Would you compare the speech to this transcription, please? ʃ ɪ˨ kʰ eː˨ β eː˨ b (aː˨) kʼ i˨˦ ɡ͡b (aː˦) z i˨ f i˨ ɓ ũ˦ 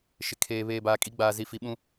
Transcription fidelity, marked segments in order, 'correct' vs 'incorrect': correct, incorrect: aː˨

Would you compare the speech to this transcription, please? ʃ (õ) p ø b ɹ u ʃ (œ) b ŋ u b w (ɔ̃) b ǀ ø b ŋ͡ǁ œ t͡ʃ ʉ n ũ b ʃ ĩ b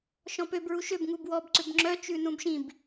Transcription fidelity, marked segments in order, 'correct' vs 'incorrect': incorrect: ɔ̃, incorrect: ø, incorrect: ɔ

